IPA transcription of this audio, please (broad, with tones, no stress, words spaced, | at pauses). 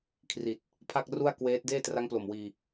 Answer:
kʰri˨˩t̚ | pʰa˥˩k̚ru˥˩a̯kweː˦˥t̚ deː˥˩tra˦˥ŋplo˨˩mwiː˧